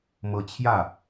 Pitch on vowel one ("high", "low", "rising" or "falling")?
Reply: rising